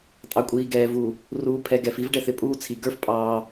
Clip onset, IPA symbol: tʼ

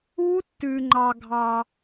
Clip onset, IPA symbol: u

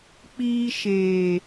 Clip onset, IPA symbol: k͡p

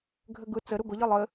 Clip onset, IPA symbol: ɡʱ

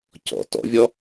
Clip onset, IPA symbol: c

